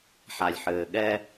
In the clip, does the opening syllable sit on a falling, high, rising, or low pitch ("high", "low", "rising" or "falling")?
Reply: low